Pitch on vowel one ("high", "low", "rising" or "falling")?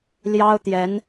high